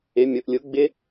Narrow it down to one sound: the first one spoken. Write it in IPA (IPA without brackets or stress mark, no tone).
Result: ɪ